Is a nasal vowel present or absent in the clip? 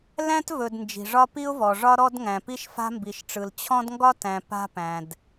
present